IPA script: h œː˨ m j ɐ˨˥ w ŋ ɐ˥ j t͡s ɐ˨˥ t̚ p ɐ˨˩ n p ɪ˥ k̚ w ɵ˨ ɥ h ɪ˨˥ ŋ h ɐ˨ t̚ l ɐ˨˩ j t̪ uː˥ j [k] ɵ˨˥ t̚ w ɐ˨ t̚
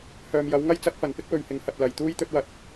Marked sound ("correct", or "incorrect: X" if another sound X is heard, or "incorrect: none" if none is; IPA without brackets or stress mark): incorrect: t̪